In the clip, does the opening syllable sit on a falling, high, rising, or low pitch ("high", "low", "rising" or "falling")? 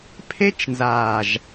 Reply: high